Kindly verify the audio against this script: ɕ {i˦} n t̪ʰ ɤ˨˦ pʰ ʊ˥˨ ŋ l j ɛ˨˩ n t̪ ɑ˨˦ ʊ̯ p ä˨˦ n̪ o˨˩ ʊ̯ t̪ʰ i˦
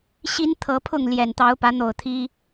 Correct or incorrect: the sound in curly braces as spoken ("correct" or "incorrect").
correct